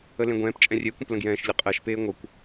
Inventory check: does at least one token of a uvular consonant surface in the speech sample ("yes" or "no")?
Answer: yes